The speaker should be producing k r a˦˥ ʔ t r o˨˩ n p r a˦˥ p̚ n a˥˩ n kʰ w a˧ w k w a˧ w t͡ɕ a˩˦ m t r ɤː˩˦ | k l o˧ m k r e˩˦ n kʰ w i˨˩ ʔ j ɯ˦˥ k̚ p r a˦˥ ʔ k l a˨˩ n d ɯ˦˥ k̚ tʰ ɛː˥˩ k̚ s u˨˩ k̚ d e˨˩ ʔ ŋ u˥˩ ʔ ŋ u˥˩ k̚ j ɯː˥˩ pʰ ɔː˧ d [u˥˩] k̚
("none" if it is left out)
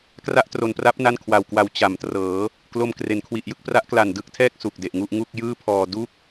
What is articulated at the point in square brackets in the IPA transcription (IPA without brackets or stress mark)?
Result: u˥˩